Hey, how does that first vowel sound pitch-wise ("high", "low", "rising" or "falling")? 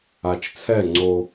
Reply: low